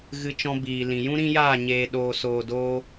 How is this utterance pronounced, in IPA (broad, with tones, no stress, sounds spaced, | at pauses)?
ɣ ɨ˧ t͡ʃ ɔ̃˧ b iː˨ l ĩ˨ j ũ˦ ɾ ĩ˦ j aː˦˨ ɲ eː˨ ɗ oː˨ s oː˨ d oː˧